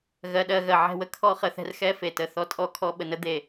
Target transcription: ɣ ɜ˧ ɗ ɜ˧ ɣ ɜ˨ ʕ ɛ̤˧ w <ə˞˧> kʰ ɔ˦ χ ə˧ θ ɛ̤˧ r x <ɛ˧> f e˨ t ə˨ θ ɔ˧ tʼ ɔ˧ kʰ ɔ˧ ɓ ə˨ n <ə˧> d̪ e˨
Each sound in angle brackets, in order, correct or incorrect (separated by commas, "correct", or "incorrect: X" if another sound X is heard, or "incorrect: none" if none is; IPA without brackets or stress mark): incorrect: ə˧, incorrect: ɛ˦, incorrect: ə˨˦